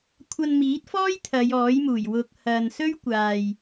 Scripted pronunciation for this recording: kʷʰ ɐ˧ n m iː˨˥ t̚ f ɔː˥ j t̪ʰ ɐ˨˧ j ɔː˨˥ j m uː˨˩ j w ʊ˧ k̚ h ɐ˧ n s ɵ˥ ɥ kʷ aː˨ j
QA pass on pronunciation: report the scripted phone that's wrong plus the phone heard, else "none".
none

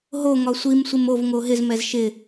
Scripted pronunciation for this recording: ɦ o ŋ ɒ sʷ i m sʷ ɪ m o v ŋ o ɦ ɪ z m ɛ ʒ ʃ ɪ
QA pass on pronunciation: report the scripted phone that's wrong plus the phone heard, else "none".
ʒ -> z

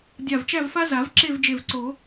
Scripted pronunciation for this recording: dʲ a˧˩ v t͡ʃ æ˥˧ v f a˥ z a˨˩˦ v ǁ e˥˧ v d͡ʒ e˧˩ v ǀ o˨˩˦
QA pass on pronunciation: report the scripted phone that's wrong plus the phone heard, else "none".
none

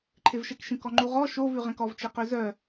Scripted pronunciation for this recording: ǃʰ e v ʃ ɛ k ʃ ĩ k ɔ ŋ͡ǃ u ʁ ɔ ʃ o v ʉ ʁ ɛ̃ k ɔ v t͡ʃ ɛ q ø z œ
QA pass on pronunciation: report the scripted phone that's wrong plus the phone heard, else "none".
none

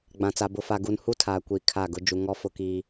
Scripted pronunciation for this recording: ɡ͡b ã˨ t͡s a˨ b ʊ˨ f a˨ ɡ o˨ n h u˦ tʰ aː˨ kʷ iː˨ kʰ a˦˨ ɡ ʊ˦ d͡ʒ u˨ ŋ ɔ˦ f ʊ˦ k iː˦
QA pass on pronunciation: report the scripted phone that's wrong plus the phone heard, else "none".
o˨ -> u˨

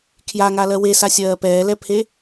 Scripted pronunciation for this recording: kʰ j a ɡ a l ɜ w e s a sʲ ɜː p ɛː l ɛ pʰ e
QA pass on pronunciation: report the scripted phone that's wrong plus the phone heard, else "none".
ɡ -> ŋ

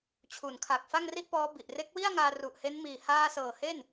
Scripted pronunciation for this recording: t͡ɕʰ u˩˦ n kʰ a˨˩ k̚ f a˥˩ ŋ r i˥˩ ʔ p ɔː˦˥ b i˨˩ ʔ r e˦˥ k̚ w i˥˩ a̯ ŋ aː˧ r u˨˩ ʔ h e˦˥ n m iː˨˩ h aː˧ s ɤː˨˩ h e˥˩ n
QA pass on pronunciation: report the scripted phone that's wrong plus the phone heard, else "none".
none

